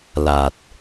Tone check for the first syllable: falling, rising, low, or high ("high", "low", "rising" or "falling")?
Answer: low